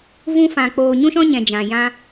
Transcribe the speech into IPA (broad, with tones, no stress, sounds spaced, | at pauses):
v ũ˧ f ã˨ k͡p oː˨ ɲ ũ˧ ʃ ɔ̃˧ ɲ ɛ̃˨ d͡ʒ ã˨ j ã˧